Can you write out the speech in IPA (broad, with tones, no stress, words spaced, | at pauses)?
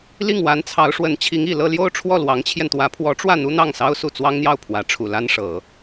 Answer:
li˥˩ŋwa˧˥nt͡sʰɑ˧˥ʊ̯ʂwə˧˥n t͡ɕʰi˧˥ŋi˨˩lɤ˥˧ljo˥˧ʊ̯ ʈ͡ʂʰwɔ˥˩lwɑ˧˥ŋt͡ɕʰjɛ˧nt̪wä˧˥ pʰwɔ˧˥ʈ͡ʂwä˥˩ n̪u˥n̪ɑ˥˩ŋsɑ˥ʊ̯su˥˩ t͡swɑ˥ŋn̪jɑ˥˩ʊ̯ pʰwä˧˥ʈ͡ʂʰu˨˩la˥nʂɤ˨˩˦